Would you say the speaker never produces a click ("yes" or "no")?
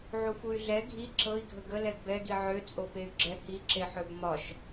no